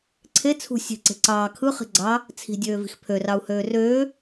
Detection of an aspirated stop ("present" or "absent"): present